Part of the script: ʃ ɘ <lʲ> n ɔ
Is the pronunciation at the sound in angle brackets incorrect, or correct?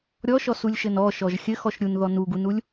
incorrect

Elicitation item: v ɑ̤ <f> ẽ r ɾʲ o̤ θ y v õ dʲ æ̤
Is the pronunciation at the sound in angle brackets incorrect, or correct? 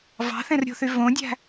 incorrect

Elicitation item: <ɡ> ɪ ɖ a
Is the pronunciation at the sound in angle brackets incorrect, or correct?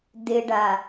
incorrect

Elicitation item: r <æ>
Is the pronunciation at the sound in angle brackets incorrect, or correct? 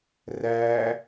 correct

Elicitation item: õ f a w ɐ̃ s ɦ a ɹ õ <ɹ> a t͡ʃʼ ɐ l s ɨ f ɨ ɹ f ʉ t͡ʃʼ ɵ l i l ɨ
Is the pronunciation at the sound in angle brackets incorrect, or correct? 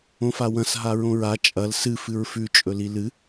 correct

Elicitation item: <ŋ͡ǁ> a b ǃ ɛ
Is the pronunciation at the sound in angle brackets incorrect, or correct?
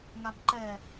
incorrect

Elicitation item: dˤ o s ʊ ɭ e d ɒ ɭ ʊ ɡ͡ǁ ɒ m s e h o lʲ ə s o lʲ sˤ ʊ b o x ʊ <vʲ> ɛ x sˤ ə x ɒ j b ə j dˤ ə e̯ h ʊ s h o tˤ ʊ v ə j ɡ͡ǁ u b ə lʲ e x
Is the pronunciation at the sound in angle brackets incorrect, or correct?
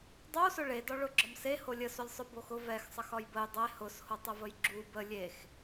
incorrect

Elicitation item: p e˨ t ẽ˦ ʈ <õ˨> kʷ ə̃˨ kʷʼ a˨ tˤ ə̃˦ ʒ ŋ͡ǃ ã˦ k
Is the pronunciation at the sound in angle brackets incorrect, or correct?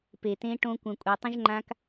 incorrect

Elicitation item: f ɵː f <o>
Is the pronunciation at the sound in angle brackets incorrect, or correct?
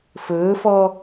incorrect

